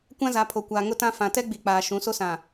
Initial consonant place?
velar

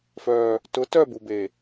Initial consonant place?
labial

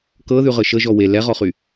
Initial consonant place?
velar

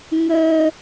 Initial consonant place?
velar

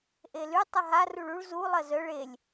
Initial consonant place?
glottal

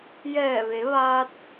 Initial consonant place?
palatal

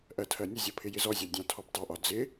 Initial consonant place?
glottal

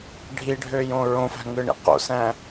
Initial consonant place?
retroflex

